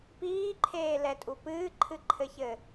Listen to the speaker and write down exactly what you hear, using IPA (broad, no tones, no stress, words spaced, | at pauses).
piːǃʰeːlɛtʼu pɨːǃʰɨǃʰɘçɘː